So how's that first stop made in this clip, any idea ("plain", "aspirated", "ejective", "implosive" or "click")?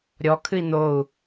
aspirated